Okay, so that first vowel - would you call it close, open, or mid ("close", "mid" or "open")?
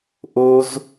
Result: mid